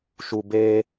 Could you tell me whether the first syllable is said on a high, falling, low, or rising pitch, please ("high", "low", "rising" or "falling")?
low